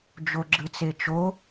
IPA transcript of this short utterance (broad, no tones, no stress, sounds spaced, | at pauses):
d͡ʒ o ɡ͡ǁ ɯ t͡s e t͡ʃ o